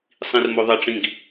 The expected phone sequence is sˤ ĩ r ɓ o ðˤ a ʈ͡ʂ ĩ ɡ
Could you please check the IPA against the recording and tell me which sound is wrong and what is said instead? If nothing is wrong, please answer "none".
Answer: ɓ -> m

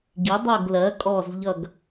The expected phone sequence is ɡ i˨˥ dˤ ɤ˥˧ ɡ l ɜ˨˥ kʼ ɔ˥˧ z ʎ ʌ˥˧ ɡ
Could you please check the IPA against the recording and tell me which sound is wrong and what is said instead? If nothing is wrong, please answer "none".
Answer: none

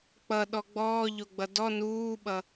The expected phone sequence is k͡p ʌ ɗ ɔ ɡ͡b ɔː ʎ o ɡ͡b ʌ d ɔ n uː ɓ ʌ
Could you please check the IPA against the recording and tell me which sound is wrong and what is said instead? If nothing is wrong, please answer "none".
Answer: none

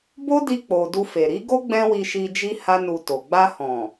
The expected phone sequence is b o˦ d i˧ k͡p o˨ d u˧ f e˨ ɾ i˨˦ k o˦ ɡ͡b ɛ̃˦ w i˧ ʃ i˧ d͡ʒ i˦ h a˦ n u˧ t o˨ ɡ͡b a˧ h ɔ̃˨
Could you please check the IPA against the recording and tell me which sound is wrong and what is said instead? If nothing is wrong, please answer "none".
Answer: k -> ɡ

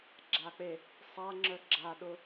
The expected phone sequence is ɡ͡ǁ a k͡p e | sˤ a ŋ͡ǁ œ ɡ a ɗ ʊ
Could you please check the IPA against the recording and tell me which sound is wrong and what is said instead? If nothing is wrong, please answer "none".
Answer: ɡ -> ɡ͡ǁ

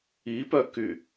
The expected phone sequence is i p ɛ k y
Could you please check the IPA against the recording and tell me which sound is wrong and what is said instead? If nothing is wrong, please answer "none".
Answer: ɛ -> œ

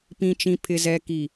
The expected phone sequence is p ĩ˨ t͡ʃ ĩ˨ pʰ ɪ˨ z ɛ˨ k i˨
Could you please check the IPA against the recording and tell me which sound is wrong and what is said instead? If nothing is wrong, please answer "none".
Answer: none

